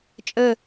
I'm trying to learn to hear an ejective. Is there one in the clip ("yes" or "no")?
yes